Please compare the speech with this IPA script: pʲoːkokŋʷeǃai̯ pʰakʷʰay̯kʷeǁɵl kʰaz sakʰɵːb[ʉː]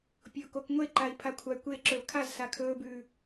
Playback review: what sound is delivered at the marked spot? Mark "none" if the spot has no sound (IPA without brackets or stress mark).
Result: ʉː